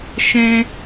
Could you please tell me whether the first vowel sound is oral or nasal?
nasal